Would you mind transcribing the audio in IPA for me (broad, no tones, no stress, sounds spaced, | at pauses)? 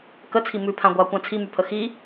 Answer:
k ə t͡sʰ i m ʉ pʰ ã ɡʷ a kʷ ã t͡sʰ i m y pʰ ə x i